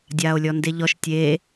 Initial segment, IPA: dʲ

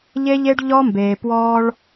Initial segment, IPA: ʎ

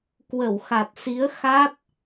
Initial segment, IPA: k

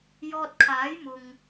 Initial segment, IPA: j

